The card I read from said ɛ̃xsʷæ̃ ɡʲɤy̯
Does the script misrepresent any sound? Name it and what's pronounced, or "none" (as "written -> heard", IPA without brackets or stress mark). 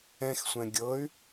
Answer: æ̃ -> ɛ̃